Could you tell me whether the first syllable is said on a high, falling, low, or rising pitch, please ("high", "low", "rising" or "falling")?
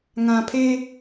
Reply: low